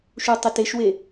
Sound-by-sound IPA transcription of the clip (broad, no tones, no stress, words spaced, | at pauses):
ʃutˤɪteʃwe